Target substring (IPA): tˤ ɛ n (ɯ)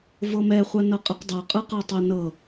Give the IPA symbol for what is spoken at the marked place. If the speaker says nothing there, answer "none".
ɤ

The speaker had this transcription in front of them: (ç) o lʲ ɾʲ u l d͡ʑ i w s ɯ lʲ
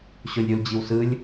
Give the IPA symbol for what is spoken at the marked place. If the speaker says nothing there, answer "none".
ɕ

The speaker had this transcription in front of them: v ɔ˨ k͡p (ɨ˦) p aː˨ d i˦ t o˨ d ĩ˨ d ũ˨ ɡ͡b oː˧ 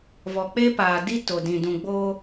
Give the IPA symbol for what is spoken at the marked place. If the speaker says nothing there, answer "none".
e˦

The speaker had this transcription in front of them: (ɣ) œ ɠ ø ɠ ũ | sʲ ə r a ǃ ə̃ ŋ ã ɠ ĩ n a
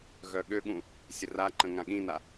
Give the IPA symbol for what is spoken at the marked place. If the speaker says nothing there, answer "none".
ɣ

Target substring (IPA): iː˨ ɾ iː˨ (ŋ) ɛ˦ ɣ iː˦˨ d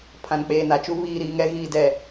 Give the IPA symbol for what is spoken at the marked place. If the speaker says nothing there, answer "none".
ŋ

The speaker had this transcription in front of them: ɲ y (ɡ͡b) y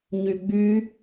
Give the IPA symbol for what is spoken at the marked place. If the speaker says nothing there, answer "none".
ɡ͡b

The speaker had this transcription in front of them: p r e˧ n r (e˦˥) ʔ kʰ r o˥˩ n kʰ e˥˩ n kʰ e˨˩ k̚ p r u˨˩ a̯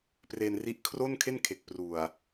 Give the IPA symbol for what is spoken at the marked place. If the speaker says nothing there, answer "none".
i˦˥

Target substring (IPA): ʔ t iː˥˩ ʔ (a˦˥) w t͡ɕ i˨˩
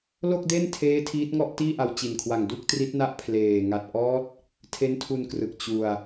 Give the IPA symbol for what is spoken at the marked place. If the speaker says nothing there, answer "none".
a˧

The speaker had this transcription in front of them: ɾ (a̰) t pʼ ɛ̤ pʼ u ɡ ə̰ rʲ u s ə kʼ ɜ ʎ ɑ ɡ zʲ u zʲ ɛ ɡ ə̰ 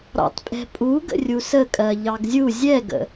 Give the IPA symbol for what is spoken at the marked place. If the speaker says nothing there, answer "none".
ɑ̰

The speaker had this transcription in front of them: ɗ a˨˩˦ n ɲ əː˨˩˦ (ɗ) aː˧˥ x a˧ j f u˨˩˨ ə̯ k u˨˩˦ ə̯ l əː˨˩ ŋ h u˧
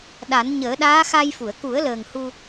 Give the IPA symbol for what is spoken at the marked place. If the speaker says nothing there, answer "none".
ɗ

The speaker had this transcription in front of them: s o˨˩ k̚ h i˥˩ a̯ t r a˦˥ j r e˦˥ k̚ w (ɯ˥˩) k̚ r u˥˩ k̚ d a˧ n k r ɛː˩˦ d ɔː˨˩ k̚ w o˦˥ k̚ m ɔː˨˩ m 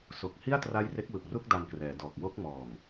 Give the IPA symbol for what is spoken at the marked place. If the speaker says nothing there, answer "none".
ɯ˨˩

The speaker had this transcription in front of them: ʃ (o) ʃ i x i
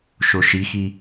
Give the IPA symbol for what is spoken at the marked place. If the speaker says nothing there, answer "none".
o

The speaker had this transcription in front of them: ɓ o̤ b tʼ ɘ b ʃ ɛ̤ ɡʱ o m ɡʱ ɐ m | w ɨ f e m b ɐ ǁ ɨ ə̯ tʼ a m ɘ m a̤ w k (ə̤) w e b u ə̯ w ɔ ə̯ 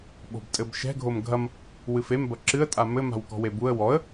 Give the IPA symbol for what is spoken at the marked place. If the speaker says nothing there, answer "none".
ɔ̤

